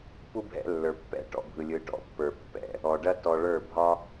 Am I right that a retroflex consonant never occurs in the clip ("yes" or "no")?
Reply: no